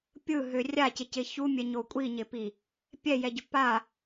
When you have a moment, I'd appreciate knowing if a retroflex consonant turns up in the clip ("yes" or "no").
no